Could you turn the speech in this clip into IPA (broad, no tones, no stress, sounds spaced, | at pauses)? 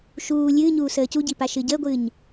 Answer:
ʃ uː lʲ ɨː ɲ uː s əː c u ɟ i p a ʃ ɨ ɟ əː ɡʷ ɨː ɲ